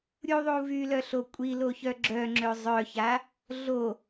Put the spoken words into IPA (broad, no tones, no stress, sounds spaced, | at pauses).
ɾʲ u ðˤ u v y l œ ɬ o kʷʼ i l o ç œ ɡ͡ǁ œ ŋ͡ǁ ø zˤ œ ç a | ɮ o